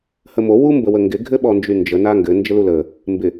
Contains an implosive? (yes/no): yes